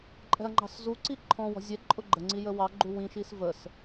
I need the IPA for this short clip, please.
ǃʼ ɛ̤ ɐ̯ ŋ͡ǃ ɑ̤ s z u ǀ i ǃʰ ɔ̃ w ɔ̤ zʲ ɛ ǃʼ ʊ ɡ͡ǃ ə ŋ͡ǀ i j ə w ɑ ɡ͡ǃ u w ĩ ʃ i s v ə s

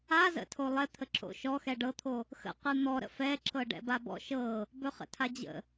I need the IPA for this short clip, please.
a z ə̰ tʰ o lˠ ɛ t̪ʰ ə ǁ o̰ ʃ ɔ x ɛ ɖ ɤ t̪ʰ o | x ə̰ q ɯ n̪ ɔ ɾ ə̰ f ɛ ǁ ɤ ɖ ɛ̰ b a b ɔ̰ ʃ ɤ | b ɵ χ ə̰ tʰ a d͡ʑ ə̰

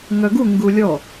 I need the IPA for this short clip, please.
ŋ œ ɡ u ŋ ɡ u lʲ ɔ

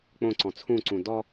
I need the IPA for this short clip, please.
k͡p õ ǀ ɔ̃ t͡sʰ ũ ǀ ũ d ɔ

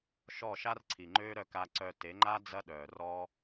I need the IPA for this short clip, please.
ʃ ɔ˦˨ ʃ a˦ r ǀʰ i˨ ŋ͡ǃ øː˦ ɾ œ˧ k a˧ ǀ œ˧ t e˨˦ ŋ͡ǃ a˦ d͡z ɐ˦ ɗ œː˨ r ɔː˦

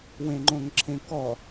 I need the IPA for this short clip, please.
w ẽ ŋ͡ǃ õ ŋ ǁʰ ẽ k ɔ

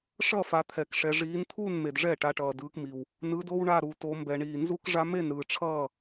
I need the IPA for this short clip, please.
ʂ ʌ˥˨ f a˨˦ t̪ʰ ɛ˨ k ʂ ɛ˨ ʐ iː˨˦ n t̪ʰ uː˥˨ n m e˨ d ʐ ɛ˥˨ ʈ a˨˦ ʈ ʌː˨ d ɯː˨˦ k m i˨ w | n ɯ˨˦ d o˦ w ɳ a˥˨ ɾ u˨ t o˨˦ m b ɛ˨ ɳ iː˨ n z u˦ k ʐ a˦ m e˥˨ n ɾ ɯː˨ ʈ͡ʂʰ ʌː˥˨

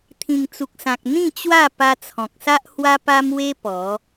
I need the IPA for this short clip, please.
t̪ʰ ĩ˨˩ ŋ t͡s u˨ k̚ s ã˨ k̚ n̪ ĩ˥˧ t͡ɕ w a˥˧ p a˧ t͡sʰ ɔ̃˨ k̚ s a˦ ʔ h w a˦ p a˦ m w e˦ p ɔ˨˦

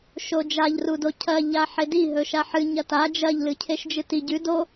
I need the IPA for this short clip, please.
ʃ o d͡ʒ a ʎ r u d o cʰ ɐ ʎ a ħ e d i ɦ ɵ ʃ a ħ ɨ ɲ ɐ t a d͡ʒ ɐ ʎ l ɨ cʰ e ʃ d͡ʒ ɨ t i ɟ ʉ d o

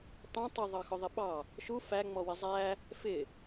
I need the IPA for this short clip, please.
t ɑ̃ tˤ ʊ ðˤ ɑ x ʊ ðˤ ɪ ɓ ɑ | ʃ u f æ ŋ͡m ɔ w ɪ zˤ æ | f ɪ

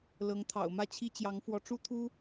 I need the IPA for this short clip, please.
l ɤ˧˥ ŋ t̪ʰ ɑ̰˨˩ ʊ̯ m ä˥˩ t͡ɕʰ i˥ t͡ɕ j ɑ˧˥ ŋ f w ɔ˧˥ ʈ͡ʂ u˥ t̪ʰ u˥

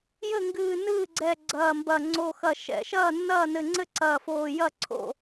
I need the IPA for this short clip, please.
j ɘ˥˩ ŋ ɡ ɨː˧˩ n ɨː˥˩ ɡ͡ǀ ɛ˧˩ ɡ͡ǀ ɐː˧˩ m b ɐ˧˩ ŋ͡ǀ o˧˩ x ɐ˧˩ ʃ ɛ̰˧˩ ʃ ɐː˥˩ nː ɐː˥˩ n ɘ˧˩ ŋ͡ǀ ɘ˥˩ ǀ ɐː˧˩ f oː˧˩ j ɐ˥˩ ǀʰ o̰˥˩

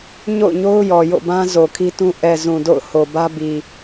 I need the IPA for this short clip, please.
ɲ o̰˦˨ ʊ̯ ɲ o˦ ʊ̯ j ɔ˨ j o̰˦˨ b ã˦ z o˨ kʰ i˦ t ũ˦ ʔ ɛ˨ z ũ˨ d o̰˦˨ ʊ̯ h o˨ b ä˦ b i˨

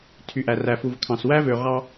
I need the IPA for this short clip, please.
tʰ y˨ ʔ æ˨ r æ˨ f u˨ v kʰ ɑ̃˨ s w æ˦ v ø˨ ʁ ɑ˦

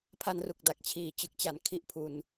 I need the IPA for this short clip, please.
pʰ a˧ n r u˨˩ k̚ d a˨˩ k̚ t͡ɕʰ iː˩˦ t͡ɕ ɯ˨˩ k̚ t͡ɕ a˩˦ n kʰ i˦˥ ʔ pʰ u˧ n

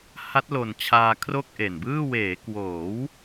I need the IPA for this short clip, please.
h a˦˥ t̚ l o˨˩ n t͡ɕʰ aː˧ kʰ r o˥˩ k̚ ʔ e˨˩ n b ɯː˥˩ w eː˩˦ k w oː˩˦ w

